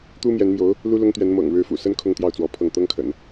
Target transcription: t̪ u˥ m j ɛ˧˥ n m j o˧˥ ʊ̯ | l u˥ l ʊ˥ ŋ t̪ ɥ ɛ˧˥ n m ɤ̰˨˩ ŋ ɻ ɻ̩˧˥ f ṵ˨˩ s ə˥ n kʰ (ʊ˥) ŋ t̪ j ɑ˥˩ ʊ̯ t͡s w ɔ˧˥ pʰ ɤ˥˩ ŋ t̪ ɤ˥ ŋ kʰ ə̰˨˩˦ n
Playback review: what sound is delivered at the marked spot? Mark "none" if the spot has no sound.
ʊ˥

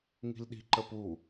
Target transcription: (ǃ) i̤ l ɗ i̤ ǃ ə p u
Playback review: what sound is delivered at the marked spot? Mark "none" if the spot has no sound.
ŋ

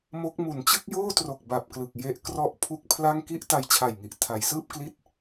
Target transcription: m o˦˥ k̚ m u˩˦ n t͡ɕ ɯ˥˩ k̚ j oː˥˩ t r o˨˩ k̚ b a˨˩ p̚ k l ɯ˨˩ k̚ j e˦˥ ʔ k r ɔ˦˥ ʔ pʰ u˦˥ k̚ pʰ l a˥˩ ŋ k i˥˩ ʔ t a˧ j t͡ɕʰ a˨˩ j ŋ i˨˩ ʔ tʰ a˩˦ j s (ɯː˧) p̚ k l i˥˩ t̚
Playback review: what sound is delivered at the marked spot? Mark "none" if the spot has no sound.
ɯː˥˩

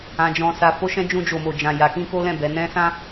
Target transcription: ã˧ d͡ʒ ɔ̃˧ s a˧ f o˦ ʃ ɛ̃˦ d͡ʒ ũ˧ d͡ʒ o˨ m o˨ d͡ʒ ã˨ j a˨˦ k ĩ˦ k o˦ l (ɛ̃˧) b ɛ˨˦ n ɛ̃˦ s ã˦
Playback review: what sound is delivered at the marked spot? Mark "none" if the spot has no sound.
ɛ̃˦˨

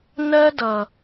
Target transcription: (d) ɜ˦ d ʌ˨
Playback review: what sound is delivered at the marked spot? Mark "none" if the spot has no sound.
n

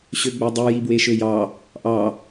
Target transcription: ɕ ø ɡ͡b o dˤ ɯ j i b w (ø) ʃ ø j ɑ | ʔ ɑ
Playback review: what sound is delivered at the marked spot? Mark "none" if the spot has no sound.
e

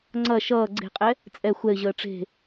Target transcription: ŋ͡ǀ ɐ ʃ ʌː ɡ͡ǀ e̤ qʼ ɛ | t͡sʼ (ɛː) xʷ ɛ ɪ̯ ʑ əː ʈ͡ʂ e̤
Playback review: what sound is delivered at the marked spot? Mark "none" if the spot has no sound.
ɛ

